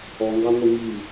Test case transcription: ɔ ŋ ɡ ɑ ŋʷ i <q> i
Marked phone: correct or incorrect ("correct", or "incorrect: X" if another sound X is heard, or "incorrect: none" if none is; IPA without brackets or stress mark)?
incorrect: ŋ